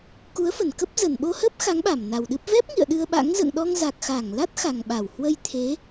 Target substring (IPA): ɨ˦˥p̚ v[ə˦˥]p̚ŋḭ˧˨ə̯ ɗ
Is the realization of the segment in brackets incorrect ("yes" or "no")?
yes